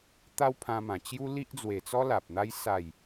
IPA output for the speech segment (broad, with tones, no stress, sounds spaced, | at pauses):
t̪ a˦ w pʰ ã˧ m ã˨˩ t͡ɕ j u˦ l i˦ ʔ d͡z w e˨˩ t͡s ɔ˦ l a˨ p̚ n̪ a˦ j s a˨˩ j